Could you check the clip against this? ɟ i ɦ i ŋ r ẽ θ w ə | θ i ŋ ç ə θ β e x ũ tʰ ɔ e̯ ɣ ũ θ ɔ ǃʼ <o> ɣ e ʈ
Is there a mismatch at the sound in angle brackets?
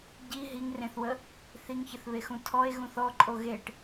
no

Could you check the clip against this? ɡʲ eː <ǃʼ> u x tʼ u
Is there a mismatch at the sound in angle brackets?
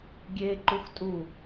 yes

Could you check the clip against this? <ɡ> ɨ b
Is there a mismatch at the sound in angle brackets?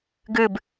no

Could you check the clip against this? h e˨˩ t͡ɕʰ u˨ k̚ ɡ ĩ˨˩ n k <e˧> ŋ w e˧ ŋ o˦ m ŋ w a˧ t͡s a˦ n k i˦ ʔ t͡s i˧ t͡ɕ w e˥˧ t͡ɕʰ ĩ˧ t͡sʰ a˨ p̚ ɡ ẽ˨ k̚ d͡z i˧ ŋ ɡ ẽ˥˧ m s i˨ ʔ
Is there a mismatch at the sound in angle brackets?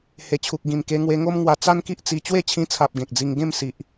no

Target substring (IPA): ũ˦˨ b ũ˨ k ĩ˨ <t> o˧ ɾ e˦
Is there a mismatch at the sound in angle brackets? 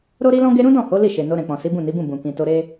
no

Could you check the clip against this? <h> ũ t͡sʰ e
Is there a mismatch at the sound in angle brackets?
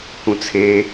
no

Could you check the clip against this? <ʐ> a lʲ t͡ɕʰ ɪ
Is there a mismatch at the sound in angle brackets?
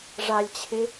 no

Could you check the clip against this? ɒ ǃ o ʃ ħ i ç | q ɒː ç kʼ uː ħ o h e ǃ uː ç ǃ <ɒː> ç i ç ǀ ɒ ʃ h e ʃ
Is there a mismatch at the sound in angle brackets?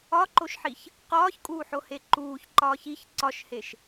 no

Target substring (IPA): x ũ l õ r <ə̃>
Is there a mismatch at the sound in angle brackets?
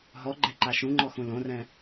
yes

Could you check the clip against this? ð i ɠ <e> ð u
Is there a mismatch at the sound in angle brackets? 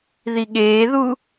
yes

